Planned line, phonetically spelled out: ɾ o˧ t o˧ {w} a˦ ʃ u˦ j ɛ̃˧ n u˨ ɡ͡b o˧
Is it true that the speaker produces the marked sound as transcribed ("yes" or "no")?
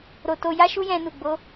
no